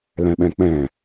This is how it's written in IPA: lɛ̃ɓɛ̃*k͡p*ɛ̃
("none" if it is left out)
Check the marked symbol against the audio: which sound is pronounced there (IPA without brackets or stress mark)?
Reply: k͡p